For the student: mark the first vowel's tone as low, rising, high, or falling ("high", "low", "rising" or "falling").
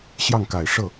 falling